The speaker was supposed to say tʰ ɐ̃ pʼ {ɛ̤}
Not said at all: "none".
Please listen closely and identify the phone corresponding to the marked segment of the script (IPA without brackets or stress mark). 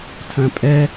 ɛ